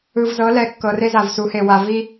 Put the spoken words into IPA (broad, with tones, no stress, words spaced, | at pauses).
ɯ˨vzɤ˨˦ lɛ˨˦kːɤ˨ re˦za˨vsu˨˦he˨ wa˨ vi˦